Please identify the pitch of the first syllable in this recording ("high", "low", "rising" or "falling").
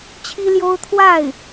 high